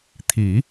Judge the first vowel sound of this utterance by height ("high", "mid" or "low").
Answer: high